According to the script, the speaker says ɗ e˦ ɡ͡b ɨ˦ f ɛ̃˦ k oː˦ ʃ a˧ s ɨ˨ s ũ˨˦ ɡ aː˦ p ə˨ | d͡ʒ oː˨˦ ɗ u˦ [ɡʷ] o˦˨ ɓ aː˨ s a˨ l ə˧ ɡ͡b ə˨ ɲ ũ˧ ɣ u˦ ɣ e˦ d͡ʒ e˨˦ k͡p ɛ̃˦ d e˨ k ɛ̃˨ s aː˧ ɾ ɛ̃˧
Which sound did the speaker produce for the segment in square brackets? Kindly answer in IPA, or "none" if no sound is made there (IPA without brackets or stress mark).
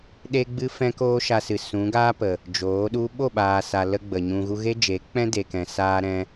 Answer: ɓ